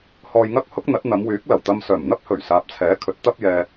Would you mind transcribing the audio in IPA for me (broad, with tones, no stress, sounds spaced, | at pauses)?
h ɔː˧ j ŋ ɐ˥ k̚ h ʊ˥ k̚ n̪ ɐ˨˥ t̚ n̪ ɐ˨˧ m w yː˨˥ k̚ l ɐ˨˩ w t̪ ɐ˧ m s œː˨˩ m n̪ ɐ˥ p̚ h ɵ˨˩ ɥ s aː˨ p̚ t͡sʰ ɛː˨˥ kʰ ɵ˨˥ t̚ t̪ ɐ˥ p̚ j ɛː˧